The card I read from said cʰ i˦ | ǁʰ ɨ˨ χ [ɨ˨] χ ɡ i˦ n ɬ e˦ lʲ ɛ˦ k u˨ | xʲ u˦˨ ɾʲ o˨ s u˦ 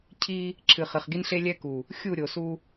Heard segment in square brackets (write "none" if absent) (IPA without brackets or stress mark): ɨ˨